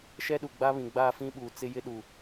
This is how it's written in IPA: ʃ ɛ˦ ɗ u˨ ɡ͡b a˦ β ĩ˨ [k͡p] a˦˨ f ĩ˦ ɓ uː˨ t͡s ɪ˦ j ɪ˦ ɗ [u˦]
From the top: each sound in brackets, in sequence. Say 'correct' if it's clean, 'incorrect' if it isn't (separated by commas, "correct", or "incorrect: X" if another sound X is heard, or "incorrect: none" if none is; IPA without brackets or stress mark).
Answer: incorrect: ɡ͡b, incorrect: u˨